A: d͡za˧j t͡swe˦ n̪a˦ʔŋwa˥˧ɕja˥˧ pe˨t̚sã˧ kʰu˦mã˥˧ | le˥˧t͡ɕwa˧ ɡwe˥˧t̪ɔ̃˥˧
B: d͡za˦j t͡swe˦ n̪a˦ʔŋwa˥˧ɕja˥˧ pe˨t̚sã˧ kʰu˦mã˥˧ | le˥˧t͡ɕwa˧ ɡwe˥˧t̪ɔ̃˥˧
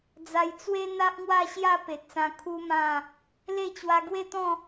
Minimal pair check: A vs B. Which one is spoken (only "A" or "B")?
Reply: A